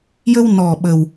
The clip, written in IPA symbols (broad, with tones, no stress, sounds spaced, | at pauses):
j ə˧ w n ɔ˨˩ ɓ ə˨˩ w